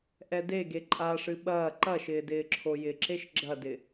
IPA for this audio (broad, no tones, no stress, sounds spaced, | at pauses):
ʔ ɛ d e ɡ e ǃʼ a ʂ ɨ ɓ ɐː ǃ ɐ ʃ ɪː d ɪː ǁʰ o j ɪ ǁ e ʃ ɡ͡ǁ ɐ d ɪ